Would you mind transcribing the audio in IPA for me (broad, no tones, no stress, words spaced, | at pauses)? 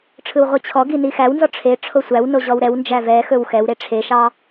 ʈ͡ʂʰɯwʁʷit͡ɕʰɔɡi nixæwnzɔ ʈ͡ʂʰe ʈ͡ʂʰosʷæwno ʑɔwɾɛwnd͡ʒæ vɛxɵw xɛwɾe ʈ͡ʂʰeʃɑ